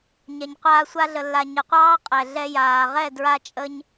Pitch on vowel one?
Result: low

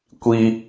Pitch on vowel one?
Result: high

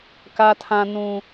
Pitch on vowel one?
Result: high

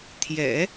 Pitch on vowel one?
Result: low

